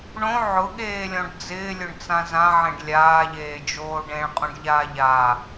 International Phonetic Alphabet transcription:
ɳõ ʕʊɠeːlʲɔ̃ɖ d͡zɪːlʲʊɳt͡sã zãʕẽɖ lʲaːʎeːd͡ʒoː ɖẽɭqʼũɖʎaː ʎa

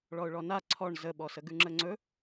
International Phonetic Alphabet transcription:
ɭɔʊ̯ɭɔna ǀʰɔɳ zəɓɔsə ɡʉŋ͡ǁəŋ͡ǀɵ

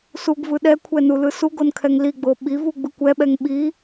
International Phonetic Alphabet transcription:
suɡvɯ ɗɛkʷʰɛ nulɯsuɡon kʰɛŋliɡ͡bo ɓivu ɡ͡bɯkʷɛɓɛŋ ɓi

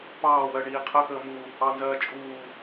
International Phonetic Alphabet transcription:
pɑːwɜ ɳiːqʰəxəː mu | ɑnzɜː t͡ʃʼuː

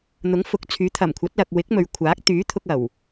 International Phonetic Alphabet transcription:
n̪ʊ˨˥ŋfʊ˨k̚t͡sʰyː˨˥ t̪ʰɐ˨˩mkʷʰɐ˨˥t̚lɐ˨k̚ wɪ˨˥k̚mɵ˨ɥ kʷʰaː˨˥k̚t̪yː˨˥t̪ʰʊ˧k̚ ɐ˨˩w

